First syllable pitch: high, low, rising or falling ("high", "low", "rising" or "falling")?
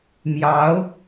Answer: rising